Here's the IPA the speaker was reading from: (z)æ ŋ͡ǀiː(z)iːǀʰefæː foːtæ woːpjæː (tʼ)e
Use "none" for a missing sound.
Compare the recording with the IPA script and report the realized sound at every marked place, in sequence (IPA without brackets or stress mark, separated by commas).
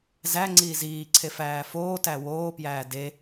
z, z, d